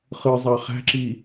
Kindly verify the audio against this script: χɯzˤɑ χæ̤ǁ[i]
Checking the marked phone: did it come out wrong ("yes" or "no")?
no